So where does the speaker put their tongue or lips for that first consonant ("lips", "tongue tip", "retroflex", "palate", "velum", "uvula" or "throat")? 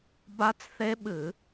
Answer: lips